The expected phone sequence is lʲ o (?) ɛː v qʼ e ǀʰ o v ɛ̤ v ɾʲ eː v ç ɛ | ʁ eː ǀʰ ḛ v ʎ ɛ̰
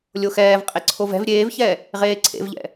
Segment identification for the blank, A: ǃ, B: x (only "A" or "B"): B